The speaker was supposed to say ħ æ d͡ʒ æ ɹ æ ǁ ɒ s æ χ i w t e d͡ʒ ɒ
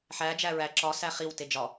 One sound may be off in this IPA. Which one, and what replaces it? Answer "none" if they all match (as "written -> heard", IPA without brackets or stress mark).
none